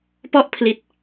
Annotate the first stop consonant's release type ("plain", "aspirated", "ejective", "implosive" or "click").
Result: plain